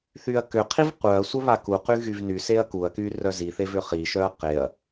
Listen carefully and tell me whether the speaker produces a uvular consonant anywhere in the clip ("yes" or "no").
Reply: yes